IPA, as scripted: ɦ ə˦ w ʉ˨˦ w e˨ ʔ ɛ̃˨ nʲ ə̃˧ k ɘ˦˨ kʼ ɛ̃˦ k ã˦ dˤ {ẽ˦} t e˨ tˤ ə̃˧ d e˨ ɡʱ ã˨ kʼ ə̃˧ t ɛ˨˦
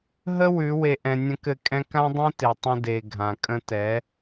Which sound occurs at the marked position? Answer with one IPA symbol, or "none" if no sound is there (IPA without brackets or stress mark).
ẽ˦